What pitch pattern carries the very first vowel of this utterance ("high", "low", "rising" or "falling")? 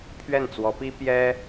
falling